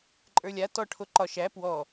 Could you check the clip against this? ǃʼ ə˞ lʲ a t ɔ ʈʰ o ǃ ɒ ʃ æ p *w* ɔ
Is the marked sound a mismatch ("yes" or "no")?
no